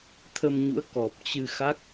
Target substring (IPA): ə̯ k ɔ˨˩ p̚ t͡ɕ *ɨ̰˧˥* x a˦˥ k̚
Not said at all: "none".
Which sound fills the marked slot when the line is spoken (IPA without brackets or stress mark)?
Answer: ɨ˧